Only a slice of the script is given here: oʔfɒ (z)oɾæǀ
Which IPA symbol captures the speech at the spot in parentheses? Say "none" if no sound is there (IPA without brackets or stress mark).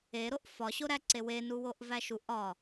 ɕ